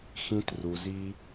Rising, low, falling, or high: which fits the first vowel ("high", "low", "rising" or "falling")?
high